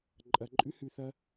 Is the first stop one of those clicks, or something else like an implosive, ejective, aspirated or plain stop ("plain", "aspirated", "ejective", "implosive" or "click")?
click